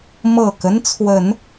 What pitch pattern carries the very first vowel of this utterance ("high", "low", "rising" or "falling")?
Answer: low